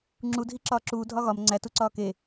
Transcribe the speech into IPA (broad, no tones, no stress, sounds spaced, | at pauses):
ŋ͡ǁ u dʱ i ǁ ɒː ǁ uː dʱ ɒ ɣ ɒ m ŋ͡ǀ æ t u ǀ ɒː k e